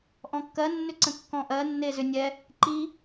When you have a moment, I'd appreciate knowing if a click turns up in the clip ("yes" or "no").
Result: yes